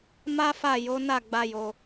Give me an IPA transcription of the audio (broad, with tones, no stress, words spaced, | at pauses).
ma˦fa˦˨ jo˨˦na˦˨ ɡ͡ba˧jo˧